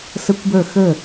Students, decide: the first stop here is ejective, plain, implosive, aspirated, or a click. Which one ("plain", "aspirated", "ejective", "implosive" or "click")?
plain